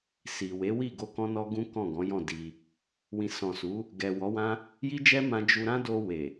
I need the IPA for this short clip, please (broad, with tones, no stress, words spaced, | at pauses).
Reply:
si˨we˨˦wi˦˨ɡo˧ kɔ̃˦nɔ˦ɡũ˦kɔ̃˦˨ ɡɔ̃˨˦jɔ̃˦˨ di˧ | wĩ˨sɔ̃˨su˨˦ | ɡɛ˨ wɔ˨˦wã˦ | ji˦d͡ʒɛ˦mã˧ d͡ʒu˧ ɾã˦do˧ we˨